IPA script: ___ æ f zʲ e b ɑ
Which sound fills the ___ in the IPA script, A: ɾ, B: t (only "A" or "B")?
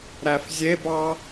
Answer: A